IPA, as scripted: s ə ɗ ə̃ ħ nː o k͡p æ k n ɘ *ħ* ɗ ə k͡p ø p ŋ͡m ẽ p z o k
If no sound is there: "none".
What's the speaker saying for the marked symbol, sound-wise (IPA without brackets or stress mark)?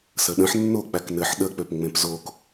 ħ